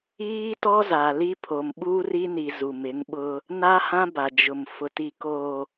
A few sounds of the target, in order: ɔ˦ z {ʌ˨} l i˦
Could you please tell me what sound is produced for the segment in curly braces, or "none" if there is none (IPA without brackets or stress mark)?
a˨